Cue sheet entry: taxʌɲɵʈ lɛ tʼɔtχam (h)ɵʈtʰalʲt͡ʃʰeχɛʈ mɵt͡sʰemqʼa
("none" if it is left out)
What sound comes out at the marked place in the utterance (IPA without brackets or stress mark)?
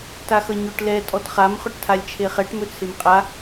χ